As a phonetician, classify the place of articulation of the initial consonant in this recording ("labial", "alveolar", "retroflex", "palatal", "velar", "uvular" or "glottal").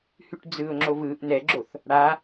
glottal